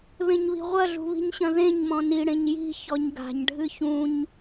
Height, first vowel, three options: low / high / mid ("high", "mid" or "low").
mid